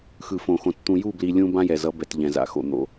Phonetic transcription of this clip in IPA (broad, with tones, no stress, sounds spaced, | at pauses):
x ɯ˨ f õ˨ x õ˨ t t̪ ũ˨ j u˦˨ b l i˨ lʲ ũ˦ b ã˦ j ɛ˨ z ʌ˨˦ b ɛ˨ t ʎ ɛ̃˨ z a̰˨ x o̰˨ n̪ o̰˦